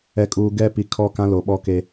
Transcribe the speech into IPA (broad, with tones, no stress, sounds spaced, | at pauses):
ɛ˨ kʼ uː˨ ɡ ɛ˦˨ p i˨ kʰ ɔ˦˨ k ã˦ l o˨ ɓ ɔ˦ k e˦